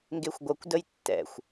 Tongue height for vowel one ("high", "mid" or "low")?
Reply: mid